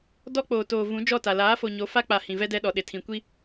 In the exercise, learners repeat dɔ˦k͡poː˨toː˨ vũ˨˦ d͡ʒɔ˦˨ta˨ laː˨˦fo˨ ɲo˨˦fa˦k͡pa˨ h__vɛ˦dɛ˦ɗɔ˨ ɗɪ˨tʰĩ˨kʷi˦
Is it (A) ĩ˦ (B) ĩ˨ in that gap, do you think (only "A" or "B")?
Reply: B